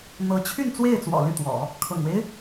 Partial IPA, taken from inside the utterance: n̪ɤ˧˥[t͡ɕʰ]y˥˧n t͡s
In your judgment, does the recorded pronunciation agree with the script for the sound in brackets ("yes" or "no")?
yes